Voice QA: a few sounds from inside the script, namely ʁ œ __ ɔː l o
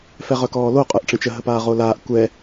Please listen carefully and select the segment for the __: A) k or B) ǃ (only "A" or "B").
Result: A